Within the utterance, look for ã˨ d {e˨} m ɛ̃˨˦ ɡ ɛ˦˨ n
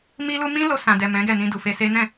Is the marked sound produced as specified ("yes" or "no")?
no